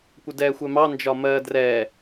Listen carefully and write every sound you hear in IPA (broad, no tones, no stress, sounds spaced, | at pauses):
kʷ ə d ɛː xʷ ɛ m ɑ n d͡ʒ ɒ m ɜː d r ɛː